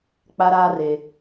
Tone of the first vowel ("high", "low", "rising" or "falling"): high